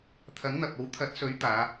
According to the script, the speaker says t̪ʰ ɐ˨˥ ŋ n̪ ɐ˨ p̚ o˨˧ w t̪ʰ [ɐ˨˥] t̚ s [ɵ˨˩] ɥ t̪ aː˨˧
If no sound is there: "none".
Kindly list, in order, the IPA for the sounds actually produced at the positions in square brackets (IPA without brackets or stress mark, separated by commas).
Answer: ɐ˨˥, ɵ˨˥